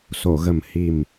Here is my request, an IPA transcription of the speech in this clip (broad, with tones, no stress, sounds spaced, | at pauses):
s o˨˩˨ ɣ ə˨˩ m h i˨˩ m